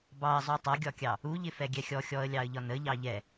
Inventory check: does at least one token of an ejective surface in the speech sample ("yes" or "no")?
no